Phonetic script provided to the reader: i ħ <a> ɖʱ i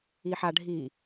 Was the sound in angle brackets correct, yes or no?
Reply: yes